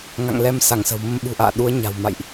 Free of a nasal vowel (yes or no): yes